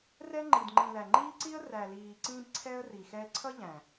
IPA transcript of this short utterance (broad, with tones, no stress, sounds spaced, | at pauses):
r ɛ˦ ŋ͡ǃ i˨ d ŋ͡ǃ ĩ˨ l æ˨ ŋ͡ǃ iː˦ ǀ i˦ ə̯ r æ˨ l iː˨ ǀ ĩ˧ b ǀʰ ɛ˦ ə̯ r i˨ x ɛ˦ ǀʰ ʌ˦ ʎ æ̃˨